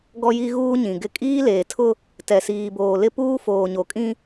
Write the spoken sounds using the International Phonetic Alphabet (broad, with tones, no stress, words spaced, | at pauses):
ɡɔ˦ji˦ ɣuː˦ɲĩ˨ɡɪ˦ kʼiː˦leː˨tʰʊ˦ | tɛ˨siː˨boː˨ lɪ˦ puː˦foː˨ɲo˨kʼĩ˦